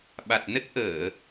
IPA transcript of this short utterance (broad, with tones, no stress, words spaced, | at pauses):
ɓa˨˩t̚nə˦˥t̚ʔəː˧˩˨